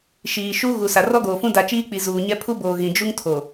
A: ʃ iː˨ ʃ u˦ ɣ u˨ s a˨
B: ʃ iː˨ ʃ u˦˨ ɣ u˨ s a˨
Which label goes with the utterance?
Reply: A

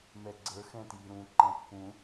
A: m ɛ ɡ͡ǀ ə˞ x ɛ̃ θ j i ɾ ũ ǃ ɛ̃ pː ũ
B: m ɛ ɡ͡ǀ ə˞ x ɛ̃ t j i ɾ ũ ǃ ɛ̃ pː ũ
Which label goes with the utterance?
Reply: B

